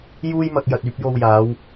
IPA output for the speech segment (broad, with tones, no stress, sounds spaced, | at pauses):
j uː˥ j m ɐ˧ k̚ j ɐ˨ t̚ yː˧ p̚ j o˧ w j aː˨˧ w